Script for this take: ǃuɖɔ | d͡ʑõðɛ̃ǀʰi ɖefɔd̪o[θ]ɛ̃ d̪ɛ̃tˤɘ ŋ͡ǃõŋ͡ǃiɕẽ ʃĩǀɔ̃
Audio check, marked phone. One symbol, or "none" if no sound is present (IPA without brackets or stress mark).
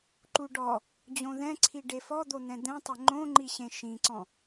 n̪